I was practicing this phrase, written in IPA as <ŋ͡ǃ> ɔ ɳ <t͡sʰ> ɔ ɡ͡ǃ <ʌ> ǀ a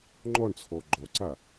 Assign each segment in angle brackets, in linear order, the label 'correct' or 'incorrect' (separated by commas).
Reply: correct, correct, incorrect